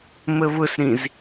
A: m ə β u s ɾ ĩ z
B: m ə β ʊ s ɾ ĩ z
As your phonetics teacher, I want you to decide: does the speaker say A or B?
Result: B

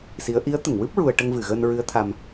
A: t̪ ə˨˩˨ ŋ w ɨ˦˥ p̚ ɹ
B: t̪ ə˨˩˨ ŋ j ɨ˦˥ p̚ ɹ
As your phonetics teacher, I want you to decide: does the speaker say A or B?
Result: A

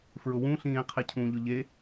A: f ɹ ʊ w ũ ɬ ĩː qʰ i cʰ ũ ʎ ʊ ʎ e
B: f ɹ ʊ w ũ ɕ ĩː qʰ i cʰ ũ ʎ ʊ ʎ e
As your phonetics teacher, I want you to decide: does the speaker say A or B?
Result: A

